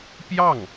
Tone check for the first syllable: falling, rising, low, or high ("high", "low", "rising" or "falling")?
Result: falling